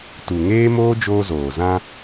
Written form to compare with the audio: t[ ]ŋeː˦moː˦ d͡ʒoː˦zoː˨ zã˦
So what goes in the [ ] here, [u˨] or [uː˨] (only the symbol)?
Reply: u˨